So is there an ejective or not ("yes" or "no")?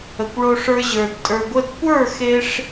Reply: yes